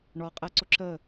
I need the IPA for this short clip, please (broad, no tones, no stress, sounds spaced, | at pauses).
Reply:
ɳ ɔ qʼ ɛ ǀ ʊ ǁ ə